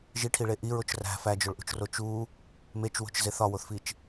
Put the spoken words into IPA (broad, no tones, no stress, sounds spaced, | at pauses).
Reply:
ʒ i ʈʰ i ɭ e ʔ i ɹ o t͡ʃ r æ̤ f æ d͡ʒ o ɭ ʔ ṳ t͡ʃ r o t͡ʃ u | m e t͡ʃ w o̤ t͡ʃ z e θ ɒ w o θ f i t͡ʃ